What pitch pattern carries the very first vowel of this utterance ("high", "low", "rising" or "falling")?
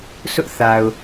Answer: high